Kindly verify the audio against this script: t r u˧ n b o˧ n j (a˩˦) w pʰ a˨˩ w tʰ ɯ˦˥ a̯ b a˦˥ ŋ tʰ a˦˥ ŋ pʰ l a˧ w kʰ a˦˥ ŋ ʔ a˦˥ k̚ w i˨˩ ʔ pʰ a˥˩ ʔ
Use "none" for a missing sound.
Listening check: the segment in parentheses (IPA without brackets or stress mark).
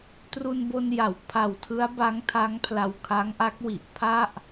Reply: a˩˦